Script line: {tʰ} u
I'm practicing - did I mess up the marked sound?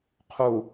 yes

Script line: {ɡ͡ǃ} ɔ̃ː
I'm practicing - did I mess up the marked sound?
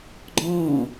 no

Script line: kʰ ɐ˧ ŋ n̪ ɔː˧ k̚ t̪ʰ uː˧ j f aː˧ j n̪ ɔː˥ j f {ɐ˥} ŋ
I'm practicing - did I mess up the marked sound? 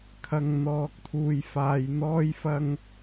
no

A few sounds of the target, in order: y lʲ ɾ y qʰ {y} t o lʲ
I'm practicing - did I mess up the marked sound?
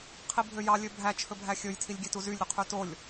no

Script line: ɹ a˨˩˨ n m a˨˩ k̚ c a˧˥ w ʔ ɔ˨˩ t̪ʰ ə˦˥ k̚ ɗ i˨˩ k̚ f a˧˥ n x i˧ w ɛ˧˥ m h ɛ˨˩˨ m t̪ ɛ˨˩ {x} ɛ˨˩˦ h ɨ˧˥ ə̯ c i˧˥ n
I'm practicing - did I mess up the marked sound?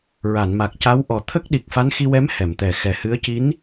no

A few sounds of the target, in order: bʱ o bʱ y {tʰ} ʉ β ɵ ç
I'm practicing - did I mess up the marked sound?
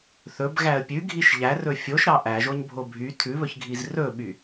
no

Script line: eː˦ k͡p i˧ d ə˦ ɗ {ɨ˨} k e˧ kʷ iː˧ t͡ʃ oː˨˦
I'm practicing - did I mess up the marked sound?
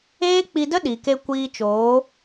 yes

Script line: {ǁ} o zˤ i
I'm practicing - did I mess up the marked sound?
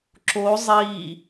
no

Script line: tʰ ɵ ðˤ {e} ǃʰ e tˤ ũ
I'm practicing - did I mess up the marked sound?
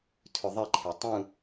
yes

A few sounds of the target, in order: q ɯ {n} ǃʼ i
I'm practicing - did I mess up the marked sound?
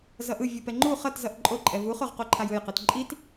yes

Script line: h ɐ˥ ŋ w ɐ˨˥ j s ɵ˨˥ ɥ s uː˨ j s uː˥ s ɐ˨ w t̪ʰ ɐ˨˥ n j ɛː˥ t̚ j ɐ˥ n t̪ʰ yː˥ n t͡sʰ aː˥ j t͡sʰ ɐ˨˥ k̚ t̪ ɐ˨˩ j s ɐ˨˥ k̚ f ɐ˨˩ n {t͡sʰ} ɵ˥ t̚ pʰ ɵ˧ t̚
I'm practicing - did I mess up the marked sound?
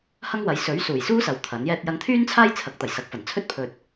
no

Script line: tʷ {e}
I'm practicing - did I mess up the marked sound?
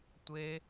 no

